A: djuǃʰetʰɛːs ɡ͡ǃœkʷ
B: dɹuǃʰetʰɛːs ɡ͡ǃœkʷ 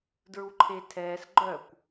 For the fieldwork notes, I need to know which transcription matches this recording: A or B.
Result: B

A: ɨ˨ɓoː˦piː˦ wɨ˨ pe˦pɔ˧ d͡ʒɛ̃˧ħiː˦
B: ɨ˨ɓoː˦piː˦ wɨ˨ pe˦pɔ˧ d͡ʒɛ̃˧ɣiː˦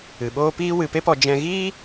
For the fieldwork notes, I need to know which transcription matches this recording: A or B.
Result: B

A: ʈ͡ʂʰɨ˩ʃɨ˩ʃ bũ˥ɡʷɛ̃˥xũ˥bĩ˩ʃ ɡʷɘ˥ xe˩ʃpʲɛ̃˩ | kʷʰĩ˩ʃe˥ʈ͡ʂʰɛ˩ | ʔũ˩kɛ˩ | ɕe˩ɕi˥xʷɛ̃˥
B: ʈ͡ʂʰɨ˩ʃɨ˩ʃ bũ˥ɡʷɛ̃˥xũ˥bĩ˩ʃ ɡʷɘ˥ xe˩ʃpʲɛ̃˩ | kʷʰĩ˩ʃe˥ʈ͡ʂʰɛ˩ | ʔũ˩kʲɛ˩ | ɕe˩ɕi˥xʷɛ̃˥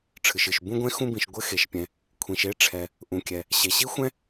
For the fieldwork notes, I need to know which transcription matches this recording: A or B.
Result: B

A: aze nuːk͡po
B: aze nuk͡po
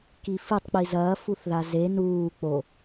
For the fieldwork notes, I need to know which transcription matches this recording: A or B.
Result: A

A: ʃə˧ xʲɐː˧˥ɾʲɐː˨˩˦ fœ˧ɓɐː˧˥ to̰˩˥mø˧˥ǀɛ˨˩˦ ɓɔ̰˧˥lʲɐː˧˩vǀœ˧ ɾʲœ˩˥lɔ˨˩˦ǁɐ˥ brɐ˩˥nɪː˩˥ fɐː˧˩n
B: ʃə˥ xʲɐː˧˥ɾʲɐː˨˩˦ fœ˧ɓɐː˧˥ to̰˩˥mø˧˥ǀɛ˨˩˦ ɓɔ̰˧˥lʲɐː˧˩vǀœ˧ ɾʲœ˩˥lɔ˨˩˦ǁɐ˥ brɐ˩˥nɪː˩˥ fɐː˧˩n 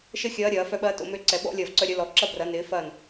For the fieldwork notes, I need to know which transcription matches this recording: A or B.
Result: B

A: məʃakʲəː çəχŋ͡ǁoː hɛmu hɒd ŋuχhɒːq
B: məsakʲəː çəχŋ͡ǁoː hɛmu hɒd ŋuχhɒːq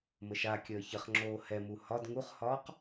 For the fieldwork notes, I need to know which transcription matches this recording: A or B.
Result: A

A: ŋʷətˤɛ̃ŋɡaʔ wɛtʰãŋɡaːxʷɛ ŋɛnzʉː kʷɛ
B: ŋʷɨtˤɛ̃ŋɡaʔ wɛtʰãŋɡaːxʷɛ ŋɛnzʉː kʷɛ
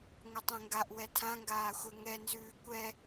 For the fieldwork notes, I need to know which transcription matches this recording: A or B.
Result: B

